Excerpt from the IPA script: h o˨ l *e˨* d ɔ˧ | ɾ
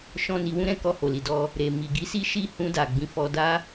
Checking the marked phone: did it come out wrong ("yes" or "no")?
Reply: yes